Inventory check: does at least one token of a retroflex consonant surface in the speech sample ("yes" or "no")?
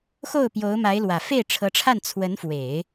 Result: yes